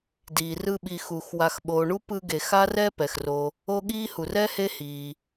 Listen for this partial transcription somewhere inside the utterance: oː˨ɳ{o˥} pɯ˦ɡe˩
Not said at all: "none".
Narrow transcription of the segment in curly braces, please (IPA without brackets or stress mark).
u˥